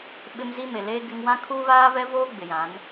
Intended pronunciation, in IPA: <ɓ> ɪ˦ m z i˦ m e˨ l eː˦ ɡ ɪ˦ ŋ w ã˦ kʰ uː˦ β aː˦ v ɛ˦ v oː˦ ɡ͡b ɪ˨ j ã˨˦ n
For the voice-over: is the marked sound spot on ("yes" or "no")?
yes